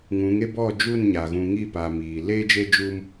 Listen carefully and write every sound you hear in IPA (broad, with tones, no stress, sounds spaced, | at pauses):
ŋ ũ˨˦ ŋ e˦ b ɔ˦˨ d͡ʒ u˦˨ n ɲ aː˨ ɣ ũ˨ ŋ i˦˨ p aː˨ m iː˨ l e˦ d͡ʒ e˦ d͡ʒ uː˦ m